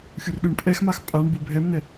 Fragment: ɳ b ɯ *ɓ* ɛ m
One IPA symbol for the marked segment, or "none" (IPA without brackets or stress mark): bʱ